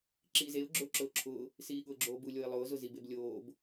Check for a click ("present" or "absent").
present